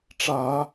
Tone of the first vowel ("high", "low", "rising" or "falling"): low